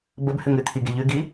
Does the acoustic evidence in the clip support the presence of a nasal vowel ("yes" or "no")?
no